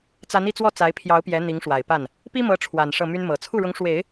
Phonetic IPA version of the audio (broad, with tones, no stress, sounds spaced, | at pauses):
t͡s a˧˥ n i˥˧ t͡s w ɔ˥˩ t͡s a˧˥ ɪ̯ pʰ j ɑ˧˥ ʊ̯ p j ɛ˧˥ n̪ i˧˥ ŋ ʂ w a˨˩ ɪ̯ p a˥˩ n | p i˥ m ɤ˧˥ ʈ͡ʂʰ w a˨˩ n ʂ ɤ˥˩ m y˥ n m ɤ˨˩ t͡sʰ u˥˩ ɻ ʊ˧˥ ŋ ʂ w e˨˩˦ ɪ̯